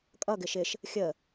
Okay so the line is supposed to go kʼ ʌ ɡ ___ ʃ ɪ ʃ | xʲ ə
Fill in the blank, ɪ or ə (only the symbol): ɪ